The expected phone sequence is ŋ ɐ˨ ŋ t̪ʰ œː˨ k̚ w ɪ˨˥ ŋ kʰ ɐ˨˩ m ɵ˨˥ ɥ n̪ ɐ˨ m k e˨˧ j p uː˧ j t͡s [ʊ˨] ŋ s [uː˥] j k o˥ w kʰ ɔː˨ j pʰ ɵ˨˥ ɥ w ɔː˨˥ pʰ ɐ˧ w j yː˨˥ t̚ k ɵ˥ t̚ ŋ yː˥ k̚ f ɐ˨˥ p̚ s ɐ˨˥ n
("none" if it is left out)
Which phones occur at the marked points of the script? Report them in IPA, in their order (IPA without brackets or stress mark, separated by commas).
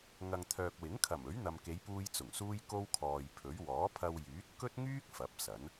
ʊ˨˩, uː˥